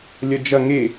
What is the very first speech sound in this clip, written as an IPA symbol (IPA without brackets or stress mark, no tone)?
lʲ